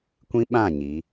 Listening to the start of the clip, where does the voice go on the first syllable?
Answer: high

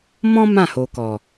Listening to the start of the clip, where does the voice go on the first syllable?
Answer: high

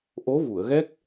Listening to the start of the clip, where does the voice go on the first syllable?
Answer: rising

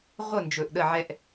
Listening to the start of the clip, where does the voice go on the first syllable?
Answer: falling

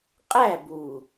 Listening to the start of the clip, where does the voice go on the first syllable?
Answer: falling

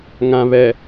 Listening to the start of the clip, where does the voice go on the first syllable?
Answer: low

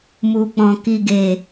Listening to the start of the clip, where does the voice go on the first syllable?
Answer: low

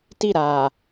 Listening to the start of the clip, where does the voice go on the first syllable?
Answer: falling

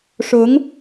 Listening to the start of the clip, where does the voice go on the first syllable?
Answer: rising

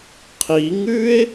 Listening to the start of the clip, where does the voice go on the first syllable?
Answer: rising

